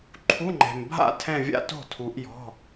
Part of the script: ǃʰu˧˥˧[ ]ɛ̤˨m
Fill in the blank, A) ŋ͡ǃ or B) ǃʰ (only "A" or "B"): A